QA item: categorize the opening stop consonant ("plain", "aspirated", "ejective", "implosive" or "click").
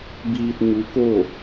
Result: plain